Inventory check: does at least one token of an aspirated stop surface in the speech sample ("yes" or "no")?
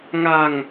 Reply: no